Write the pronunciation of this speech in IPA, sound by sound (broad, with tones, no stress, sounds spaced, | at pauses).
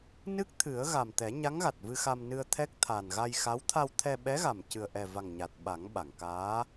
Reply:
n ɨ˦˥ k̚ t̪ʰ ɨ˨˩˦ ə̯ ɣ a˨˩ m t̪ ɛ˨˩˦ ɲ a˧˥ ŋ ɣ a˨˩ t̚ v ɨ˧ x a˧ m n ɨ˧ ə̯ t̪ʰ ɛ˦˥ k̚ t̪ʰ a˨˩ n ɣ a˧ j x a˧˥ w t̪ʰ a˧ w t̪ʰ ɛ˧ ɓ ɛ˧˥ ɣ a˨˩ m c ɨ˨˩ ə̯ ʔ ɛ˨˩ v a˨˩ ŋ ɲ a˨˩ t̚ ɓ a˨˩˦ ŋ ɓ a˨˩˨ ŋ k aː˧˥